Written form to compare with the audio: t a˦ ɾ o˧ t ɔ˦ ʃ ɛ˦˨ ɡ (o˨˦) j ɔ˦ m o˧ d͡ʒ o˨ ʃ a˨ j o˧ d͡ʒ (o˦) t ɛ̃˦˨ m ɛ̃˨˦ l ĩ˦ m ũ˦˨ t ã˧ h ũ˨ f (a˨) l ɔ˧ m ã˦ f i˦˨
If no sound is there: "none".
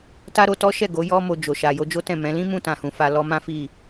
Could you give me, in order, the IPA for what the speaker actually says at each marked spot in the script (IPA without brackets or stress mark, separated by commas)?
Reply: o˨˦, o˦, a˧